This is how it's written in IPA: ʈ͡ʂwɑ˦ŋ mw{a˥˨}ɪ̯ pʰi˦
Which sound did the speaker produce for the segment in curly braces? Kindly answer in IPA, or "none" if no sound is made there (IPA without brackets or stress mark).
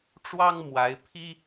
a˨˦